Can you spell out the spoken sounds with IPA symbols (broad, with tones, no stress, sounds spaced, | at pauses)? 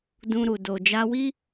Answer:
d ũ˧ ɾ u˨ d o˨ d͡ʒ a˧ w i˦